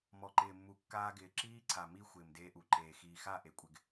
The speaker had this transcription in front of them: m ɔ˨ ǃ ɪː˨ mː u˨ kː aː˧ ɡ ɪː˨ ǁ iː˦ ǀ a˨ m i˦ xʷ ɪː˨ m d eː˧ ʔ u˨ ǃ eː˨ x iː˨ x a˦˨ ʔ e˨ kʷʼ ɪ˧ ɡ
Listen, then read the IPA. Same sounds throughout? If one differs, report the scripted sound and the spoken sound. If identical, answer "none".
none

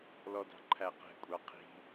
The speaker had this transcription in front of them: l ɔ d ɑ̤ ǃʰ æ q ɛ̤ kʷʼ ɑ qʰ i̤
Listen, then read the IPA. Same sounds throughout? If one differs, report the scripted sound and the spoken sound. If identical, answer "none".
none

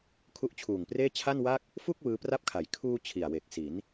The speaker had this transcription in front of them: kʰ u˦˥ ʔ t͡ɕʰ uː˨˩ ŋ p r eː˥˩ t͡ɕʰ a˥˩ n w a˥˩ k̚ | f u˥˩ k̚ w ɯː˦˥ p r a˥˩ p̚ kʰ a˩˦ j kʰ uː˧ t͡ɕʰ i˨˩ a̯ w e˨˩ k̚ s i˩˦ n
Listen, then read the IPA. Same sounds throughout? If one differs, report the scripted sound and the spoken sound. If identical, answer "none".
none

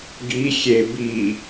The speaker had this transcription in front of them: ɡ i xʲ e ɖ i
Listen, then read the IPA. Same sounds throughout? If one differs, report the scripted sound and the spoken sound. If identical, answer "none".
ɖ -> b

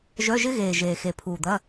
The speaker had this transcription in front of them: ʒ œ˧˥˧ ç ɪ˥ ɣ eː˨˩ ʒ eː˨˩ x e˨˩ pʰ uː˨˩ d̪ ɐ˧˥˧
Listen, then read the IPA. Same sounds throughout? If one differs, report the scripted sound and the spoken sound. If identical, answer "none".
ç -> ʒ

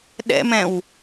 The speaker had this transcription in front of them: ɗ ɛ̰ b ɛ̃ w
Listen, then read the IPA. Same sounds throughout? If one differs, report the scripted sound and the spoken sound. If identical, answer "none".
b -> m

